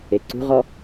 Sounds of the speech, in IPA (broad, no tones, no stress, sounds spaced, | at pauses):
e ǀ ṳ ʁ ɔ